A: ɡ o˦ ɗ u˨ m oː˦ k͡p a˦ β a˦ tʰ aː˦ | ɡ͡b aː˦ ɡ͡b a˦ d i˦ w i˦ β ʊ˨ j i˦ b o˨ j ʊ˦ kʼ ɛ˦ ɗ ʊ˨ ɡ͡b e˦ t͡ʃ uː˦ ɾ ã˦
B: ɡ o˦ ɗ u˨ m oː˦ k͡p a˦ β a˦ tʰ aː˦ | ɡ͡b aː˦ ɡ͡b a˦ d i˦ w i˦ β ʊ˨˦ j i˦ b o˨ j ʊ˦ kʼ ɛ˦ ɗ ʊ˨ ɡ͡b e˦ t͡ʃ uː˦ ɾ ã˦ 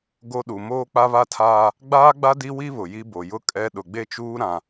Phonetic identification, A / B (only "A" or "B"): A